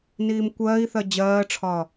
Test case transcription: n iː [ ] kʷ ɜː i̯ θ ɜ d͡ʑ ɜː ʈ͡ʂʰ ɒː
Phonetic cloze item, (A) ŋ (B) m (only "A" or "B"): B